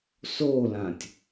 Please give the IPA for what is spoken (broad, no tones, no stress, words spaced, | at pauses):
solãtʲ